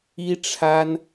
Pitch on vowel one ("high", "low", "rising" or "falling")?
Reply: high